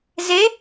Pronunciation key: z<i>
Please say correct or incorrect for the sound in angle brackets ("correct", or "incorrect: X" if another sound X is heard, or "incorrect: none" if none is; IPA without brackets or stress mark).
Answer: incorrect: e